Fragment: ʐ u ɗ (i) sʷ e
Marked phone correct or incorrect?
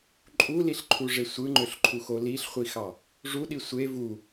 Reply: correct